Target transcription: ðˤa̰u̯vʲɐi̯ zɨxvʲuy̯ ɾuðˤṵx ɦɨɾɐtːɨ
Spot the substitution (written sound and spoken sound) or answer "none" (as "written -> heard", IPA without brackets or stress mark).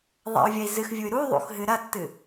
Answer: none